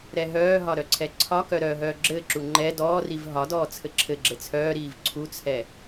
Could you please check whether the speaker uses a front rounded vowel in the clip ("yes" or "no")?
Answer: yes